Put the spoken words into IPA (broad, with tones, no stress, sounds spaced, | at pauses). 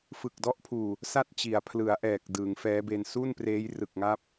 f ɯ˨˩ k̚ d ɔ˦˥ ʔ pʰ uː˨˩ | s a˥˩ t̚ t͡ɕ i˩˦ a̯ pʰ l ɯ˩˦ a̯ ʔ ɛː˨˩ k̚ d ɯː˩˦ ŋ f ɛː˦˥ b e˧ n s u˥˩ n p r eː˦˥ j r ɯ˨˩ k̚ ŋ a˦˥ p̚